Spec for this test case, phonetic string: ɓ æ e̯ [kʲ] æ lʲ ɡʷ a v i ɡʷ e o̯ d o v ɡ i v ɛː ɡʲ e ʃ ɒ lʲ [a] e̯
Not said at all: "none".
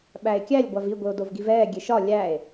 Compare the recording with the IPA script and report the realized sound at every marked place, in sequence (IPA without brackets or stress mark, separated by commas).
kʲ, æ